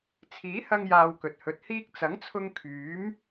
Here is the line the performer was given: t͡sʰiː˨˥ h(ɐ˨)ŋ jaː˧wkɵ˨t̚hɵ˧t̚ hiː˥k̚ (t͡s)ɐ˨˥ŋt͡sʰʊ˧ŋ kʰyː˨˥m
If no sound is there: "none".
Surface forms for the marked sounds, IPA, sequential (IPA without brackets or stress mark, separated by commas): ɐ˧, t͡s